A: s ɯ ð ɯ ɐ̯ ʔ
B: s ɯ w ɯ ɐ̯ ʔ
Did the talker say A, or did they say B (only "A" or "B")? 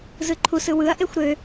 B